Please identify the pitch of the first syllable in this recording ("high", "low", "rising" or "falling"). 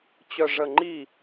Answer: low